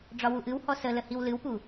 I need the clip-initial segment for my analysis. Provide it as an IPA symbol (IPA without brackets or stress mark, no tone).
ɖ͡ʐ